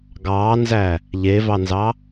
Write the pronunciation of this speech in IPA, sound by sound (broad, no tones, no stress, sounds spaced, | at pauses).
ɡ ɑː n z æ | ʎ e v ɑ n z ɑ